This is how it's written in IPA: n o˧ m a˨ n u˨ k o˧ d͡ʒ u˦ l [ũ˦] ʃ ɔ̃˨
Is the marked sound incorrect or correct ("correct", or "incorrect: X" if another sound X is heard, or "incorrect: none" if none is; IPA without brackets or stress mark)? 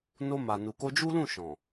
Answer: incorrect: ũ˦˨